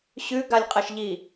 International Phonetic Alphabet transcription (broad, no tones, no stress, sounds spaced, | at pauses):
ɕ ʉ ɡ a lʲ qʼ ɐ ʃ ʎ i